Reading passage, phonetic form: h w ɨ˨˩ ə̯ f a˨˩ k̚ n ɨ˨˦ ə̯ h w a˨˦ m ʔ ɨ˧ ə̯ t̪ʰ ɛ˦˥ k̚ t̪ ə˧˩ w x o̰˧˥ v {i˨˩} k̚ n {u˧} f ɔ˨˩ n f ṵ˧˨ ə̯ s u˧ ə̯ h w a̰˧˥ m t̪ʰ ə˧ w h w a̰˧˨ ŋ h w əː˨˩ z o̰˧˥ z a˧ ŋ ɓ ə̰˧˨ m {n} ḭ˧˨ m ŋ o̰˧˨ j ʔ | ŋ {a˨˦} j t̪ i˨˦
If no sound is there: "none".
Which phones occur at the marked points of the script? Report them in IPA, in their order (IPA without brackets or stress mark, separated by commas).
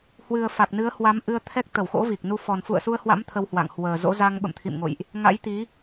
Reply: i˨˩, u˧, t̪ʰ, a̰˧˥